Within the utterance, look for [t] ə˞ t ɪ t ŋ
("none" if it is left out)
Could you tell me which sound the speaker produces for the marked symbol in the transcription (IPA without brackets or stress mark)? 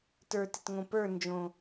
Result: t